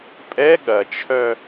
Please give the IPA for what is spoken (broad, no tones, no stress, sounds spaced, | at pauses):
pʼ ɛ ɠ ɐ t͡ʃʰ œ